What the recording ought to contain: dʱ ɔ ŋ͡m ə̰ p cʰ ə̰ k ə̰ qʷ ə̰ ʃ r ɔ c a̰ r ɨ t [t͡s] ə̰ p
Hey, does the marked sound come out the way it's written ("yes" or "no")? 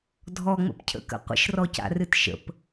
no